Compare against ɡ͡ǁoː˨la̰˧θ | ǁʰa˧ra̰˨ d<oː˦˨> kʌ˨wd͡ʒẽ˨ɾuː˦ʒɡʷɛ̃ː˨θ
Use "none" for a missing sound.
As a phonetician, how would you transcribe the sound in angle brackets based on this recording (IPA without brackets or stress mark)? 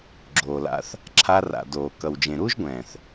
oː˨